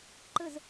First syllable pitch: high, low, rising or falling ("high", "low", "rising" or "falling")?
falling